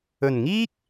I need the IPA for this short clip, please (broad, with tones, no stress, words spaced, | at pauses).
ɵ˨˩nŋiː˥k̚